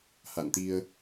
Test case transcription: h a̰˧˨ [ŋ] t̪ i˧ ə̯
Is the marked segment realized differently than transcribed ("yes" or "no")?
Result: yes